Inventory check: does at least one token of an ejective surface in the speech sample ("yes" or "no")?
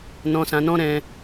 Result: no